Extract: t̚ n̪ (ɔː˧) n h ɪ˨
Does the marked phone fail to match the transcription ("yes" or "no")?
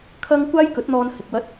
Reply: no